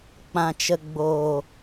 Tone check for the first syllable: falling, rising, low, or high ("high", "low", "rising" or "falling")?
low